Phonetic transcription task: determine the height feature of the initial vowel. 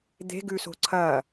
mid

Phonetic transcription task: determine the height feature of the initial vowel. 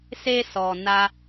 mid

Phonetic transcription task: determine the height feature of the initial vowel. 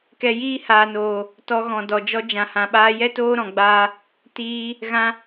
mid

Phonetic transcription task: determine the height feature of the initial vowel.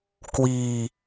high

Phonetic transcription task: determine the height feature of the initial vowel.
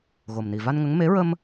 mid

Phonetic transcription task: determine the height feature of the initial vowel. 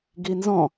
high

